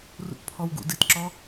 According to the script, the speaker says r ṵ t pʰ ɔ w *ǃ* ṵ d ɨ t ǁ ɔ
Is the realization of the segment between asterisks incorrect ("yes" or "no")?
yes